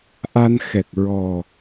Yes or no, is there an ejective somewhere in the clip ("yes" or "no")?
no